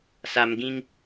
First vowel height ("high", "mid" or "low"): low